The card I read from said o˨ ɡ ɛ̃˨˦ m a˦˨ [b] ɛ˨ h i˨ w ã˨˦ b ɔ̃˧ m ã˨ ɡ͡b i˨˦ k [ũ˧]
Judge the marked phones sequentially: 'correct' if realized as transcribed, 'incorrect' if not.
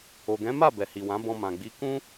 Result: correct, incorrect: ũ˦

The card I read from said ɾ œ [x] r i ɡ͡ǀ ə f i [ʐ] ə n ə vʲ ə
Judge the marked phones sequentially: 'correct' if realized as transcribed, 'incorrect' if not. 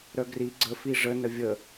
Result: incorrect: ɡ, correct

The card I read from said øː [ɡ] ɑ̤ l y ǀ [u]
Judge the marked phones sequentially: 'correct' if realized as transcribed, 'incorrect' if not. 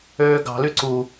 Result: correct, correct

